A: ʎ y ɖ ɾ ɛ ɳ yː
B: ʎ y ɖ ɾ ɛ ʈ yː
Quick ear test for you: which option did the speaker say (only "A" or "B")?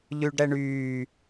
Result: A